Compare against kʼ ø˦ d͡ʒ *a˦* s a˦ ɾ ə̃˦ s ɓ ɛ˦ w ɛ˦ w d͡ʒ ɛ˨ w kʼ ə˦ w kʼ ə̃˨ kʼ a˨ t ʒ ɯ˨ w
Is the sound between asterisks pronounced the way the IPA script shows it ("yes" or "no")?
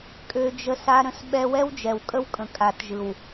no